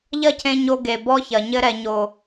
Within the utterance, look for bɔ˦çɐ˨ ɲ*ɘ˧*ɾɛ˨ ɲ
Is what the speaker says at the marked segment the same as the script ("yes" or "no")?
yes